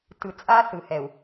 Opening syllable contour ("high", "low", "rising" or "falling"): low